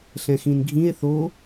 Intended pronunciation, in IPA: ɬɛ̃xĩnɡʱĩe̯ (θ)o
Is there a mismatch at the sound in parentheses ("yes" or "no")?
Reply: no